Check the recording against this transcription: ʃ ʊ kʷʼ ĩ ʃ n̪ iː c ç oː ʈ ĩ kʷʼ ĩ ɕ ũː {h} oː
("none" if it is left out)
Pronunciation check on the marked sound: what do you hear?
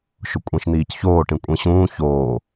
ç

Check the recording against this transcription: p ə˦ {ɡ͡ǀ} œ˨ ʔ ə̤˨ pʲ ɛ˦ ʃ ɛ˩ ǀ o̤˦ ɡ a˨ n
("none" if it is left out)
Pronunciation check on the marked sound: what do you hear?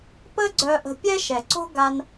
ɡ͡ǀ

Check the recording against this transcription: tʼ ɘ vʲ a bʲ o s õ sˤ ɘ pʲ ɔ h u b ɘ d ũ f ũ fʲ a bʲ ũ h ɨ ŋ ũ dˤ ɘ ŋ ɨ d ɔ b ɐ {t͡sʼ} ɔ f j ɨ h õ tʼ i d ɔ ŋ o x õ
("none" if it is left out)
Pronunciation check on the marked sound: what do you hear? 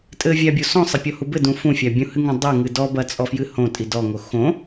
t͡sʼ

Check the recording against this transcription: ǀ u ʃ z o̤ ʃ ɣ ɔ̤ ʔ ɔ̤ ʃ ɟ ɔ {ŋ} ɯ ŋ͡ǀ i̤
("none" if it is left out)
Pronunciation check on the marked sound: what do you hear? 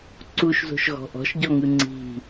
ŋ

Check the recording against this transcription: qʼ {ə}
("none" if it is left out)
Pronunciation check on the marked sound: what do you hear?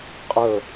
ə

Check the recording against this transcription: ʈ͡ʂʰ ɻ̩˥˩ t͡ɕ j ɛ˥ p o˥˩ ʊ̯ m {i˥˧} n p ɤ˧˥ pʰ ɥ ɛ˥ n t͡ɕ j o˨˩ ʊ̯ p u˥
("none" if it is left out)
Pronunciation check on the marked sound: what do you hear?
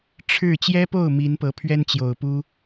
i˧˥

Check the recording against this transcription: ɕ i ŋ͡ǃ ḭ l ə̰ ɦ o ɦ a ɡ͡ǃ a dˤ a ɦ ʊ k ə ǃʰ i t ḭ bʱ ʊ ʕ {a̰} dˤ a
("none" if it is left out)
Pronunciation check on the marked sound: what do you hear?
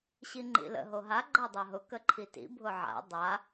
a̰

